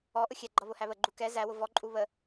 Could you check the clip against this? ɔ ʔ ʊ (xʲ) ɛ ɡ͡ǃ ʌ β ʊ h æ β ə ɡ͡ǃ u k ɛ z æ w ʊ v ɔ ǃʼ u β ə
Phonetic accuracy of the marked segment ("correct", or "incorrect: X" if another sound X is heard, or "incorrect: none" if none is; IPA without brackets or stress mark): correct